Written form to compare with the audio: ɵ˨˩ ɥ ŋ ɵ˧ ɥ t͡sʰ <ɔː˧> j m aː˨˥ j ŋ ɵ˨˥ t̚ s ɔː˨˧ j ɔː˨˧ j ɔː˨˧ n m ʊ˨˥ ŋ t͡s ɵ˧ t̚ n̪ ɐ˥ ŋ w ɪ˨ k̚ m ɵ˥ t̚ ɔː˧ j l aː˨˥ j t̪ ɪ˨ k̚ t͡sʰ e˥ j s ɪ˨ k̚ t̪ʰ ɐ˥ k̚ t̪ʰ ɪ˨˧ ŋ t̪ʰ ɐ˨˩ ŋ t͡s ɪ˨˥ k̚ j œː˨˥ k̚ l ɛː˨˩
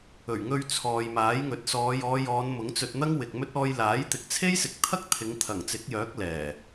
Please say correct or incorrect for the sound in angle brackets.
incorrect